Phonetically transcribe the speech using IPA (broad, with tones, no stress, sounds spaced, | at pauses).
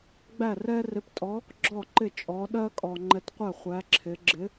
ɡ͡b æ˥˨ r ɛ˥ r ɪ˧˥ p tʼ ɔ˧˥ | ɡ͡ǁ ɔ˥˨ ǃ ɪ˥˨ t͡ʃʼ ɔ˧˥ ɗ ɜ˥ kʼ ɔ˧ ŋ͡ǃ ɛ˧˥ t qʷ æ˥˨ χʷ æ˧˥ ǁʰ ɪ˧˥ ɡ͡ǁ ɪ˧˥